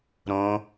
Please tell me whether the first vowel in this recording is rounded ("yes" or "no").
yes